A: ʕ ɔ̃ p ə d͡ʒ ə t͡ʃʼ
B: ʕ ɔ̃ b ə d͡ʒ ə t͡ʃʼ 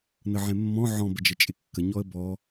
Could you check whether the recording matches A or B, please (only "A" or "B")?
B